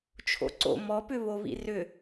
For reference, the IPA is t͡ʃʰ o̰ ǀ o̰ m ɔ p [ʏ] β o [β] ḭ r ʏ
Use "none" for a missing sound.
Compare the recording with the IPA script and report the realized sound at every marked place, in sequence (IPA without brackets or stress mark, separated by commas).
ʏ, β